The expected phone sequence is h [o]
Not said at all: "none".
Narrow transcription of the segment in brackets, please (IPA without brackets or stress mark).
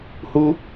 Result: u